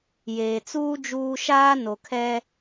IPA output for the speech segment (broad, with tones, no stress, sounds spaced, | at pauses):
j eː˨ t͡s uː˦ d͡ʒ uː˦ ʃ aː˦ n o˨ kʰ ɛ˦